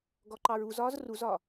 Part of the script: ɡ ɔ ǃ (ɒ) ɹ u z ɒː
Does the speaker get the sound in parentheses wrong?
yes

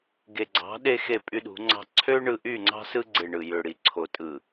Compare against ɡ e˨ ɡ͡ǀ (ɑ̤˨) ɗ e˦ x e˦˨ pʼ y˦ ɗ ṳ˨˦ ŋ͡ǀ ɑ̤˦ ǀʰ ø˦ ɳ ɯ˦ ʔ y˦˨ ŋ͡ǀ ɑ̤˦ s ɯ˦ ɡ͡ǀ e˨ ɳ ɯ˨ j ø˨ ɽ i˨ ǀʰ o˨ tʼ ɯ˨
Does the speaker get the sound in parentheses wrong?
yes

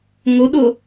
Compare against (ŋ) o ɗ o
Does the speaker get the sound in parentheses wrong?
no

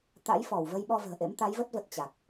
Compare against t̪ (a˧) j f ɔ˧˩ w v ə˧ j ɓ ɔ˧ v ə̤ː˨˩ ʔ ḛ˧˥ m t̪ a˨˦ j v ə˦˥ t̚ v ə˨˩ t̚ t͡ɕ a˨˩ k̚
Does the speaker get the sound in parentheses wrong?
yes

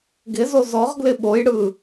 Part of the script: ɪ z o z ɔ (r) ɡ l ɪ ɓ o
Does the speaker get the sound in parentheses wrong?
yes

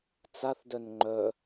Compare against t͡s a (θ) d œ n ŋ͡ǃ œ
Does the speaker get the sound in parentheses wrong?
no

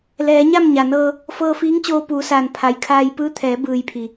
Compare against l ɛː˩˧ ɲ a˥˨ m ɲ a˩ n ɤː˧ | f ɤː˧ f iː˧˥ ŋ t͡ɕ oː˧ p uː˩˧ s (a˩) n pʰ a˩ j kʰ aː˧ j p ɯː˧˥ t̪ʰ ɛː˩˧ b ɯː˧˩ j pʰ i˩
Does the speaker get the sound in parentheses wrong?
yes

